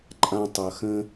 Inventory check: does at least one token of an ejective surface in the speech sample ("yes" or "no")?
yes